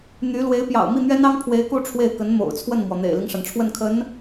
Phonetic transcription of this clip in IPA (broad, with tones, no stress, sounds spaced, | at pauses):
n̪ y˧˥ l w e˧˥ ɪ̯ p j ɑ̰˨˩ ʊ̯ m i˥˩ n̪ ɥ ɛ˥ n ɑ˥ ŋ pʰ w e˧˥ ɪ̯ k u˥˧ ʈ͡ʂʰ w e˥˩ ɪ̯ k ə˧˥ n m o̰˨˩ ʊ̯ t͡sʰ w ə˥˩ n m w ɔ˩ n̪ ḛ˨˩ ɪ̯ l i˦ ŋ ʂ a˩ n ʈ͡ʂʰ w ə˥˩ n kʰ ə˧˥ n